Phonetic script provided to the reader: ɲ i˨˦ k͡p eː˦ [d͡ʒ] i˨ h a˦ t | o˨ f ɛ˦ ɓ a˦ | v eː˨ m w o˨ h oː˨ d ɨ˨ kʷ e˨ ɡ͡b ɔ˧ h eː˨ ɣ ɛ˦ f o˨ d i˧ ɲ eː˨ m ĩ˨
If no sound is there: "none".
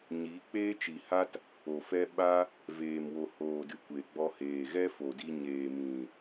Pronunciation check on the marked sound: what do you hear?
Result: t͡ʃ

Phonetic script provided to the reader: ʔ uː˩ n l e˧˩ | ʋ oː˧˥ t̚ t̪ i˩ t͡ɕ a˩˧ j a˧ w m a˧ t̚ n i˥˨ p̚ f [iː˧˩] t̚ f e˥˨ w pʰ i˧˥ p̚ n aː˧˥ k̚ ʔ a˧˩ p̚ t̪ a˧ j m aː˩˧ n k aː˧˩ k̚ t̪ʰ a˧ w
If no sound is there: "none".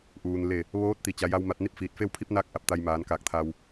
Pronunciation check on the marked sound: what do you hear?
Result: iː˧˩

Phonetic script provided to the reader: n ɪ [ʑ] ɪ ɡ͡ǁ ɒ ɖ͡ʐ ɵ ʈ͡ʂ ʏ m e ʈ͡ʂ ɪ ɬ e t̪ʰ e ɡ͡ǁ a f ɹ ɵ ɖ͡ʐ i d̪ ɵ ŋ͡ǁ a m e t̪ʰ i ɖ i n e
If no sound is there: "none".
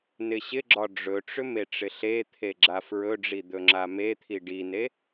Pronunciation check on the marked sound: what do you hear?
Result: ɕ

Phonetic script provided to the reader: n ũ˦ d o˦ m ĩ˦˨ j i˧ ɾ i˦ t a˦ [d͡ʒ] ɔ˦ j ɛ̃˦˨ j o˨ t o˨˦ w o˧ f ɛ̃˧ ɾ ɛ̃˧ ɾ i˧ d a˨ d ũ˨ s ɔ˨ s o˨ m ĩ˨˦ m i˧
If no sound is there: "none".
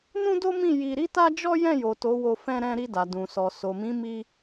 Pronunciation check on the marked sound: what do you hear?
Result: d͡ʒ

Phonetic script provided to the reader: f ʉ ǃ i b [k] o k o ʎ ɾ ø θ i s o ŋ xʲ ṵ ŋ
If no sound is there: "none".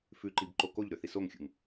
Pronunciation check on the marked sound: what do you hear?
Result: ǃ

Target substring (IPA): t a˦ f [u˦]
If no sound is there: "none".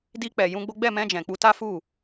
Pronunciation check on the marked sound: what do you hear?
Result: u˦˨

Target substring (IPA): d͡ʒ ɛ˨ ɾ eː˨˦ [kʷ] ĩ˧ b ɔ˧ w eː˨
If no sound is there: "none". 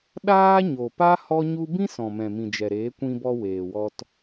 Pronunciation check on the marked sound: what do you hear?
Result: kʷ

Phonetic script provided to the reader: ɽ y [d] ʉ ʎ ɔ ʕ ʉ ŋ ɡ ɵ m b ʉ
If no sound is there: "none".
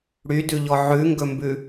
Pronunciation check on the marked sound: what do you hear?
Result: d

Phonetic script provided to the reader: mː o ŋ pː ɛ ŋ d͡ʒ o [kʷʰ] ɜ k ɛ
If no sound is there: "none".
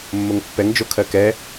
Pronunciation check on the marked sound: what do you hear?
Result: kʰ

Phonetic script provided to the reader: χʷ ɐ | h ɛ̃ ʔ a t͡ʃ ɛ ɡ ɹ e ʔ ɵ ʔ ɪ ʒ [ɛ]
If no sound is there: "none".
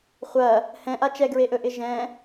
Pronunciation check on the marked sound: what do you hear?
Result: ɛ̃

